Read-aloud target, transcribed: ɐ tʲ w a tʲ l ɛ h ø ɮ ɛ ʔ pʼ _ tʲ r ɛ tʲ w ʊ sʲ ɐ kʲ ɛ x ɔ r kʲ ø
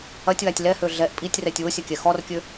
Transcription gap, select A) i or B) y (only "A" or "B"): A